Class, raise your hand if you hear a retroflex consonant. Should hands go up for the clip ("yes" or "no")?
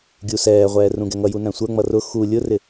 no